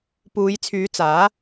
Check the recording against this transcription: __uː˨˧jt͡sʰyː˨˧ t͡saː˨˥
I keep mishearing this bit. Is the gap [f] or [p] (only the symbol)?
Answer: p